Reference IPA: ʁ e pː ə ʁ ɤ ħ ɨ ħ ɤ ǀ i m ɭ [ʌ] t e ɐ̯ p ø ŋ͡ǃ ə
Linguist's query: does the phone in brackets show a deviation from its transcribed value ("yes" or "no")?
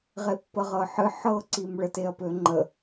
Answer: yes